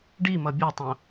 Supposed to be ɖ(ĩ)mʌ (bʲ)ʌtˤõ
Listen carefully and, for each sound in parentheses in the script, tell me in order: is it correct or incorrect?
incorrect, correct

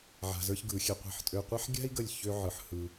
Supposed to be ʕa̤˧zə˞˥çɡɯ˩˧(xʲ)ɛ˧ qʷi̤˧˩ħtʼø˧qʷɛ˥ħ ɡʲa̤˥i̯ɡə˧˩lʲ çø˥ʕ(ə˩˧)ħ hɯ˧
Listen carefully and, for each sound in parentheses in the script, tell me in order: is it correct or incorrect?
correct, incorrect

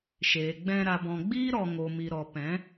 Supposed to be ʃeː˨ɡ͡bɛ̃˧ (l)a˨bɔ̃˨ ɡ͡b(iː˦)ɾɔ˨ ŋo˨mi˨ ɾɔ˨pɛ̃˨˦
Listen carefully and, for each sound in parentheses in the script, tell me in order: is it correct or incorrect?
incorrect, correct

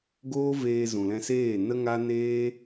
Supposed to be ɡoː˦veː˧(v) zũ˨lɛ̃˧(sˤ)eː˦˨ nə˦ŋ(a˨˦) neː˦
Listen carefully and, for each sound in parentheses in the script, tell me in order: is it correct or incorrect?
incorrect, incorrect, incorrect

